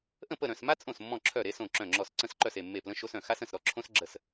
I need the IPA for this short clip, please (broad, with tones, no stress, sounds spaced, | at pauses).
ʔ ə̃˥˩ p ə˥˩ ɾ œ̃˥˩ s m a˥ t͡sʼ õ˥˩ s mː ɔ̃˥˩ ǁʰ œ˥˩ ɾ e˥ s õ˥˩ ǁ œ̃˥˩ ŋ͡ǁ ɔ˥˩ s ǀ ə̃˥˩ s ǃ œ˥˩ s e˥˩ mː e˥˩ p l ə̃˥ ʃ o˥ s œ̃˥˩ x a˥ s ə̃˥˩ s ɾ ɔ˥ ǁʰ õ˥ s ɡ͡ǁ ə˥˩ s